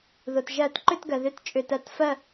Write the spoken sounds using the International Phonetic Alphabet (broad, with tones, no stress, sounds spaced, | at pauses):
ð o˩ t ʒ ɜ˧˩˧ t ǃ ʏ˥˨ t ɡ ɜ˩ ð ʏ˥˨ t t͡ʃʼ ʏ˧˩ t ɜ˧˩ t f ɜ˥˨